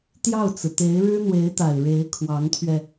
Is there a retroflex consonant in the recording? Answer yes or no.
yes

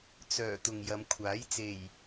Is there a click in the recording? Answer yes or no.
no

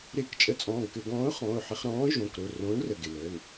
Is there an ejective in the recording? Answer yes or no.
yes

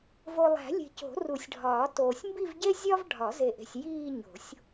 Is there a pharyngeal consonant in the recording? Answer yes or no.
no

